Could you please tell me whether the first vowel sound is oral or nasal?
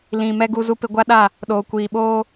nasal